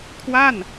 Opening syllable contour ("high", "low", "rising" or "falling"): falling